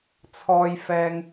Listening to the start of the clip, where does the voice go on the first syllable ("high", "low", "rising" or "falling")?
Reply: low